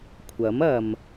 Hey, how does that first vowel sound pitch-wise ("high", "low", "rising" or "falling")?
rising